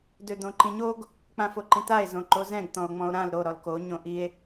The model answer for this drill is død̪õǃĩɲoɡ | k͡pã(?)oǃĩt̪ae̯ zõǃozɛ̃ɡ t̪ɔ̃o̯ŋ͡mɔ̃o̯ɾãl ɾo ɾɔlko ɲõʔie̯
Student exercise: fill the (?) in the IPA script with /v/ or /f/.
f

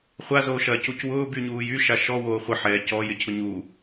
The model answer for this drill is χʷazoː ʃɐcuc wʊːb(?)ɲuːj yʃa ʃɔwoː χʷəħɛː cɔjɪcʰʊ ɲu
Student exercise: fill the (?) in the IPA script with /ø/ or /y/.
y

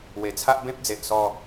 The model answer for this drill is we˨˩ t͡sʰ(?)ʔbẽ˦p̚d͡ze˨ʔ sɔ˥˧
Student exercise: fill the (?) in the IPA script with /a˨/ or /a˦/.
a˦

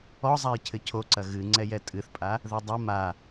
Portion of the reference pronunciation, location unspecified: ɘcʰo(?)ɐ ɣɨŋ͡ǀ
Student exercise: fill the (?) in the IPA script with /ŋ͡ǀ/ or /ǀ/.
ǀ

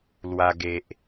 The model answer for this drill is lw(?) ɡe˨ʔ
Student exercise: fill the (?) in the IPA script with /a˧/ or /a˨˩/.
a˧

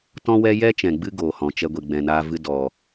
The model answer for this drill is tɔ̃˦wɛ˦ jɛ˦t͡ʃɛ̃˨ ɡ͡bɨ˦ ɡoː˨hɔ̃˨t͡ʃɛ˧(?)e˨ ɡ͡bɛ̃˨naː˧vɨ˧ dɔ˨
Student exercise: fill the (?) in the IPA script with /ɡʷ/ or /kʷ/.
ɡʷ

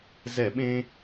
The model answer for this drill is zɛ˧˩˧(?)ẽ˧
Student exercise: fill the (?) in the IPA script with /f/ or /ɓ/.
ɓ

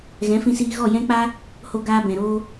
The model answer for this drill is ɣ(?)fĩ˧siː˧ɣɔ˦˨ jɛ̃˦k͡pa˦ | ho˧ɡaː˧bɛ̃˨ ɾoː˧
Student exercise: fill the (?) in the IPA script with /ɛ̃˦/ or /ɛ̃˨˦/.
ɛ̃˨˦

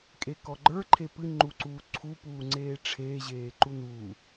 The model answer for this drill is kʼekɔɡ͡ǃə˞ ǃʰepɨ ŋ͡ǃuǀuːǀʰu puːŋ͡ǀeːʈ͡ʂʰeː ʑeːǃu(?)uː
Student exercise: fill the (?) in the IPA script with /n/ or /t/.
n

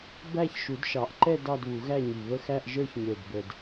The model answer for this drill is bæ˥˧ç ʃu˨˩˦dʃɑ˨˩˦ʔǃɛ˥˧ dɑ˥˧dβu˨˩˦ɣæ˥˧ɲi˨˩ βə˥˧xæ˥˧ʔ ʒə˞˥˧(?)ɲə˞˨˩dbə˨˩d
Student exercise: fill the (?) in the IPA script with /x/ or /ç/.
ç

